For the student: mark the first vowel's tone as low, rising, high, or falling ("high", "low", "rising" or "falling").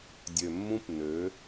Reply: low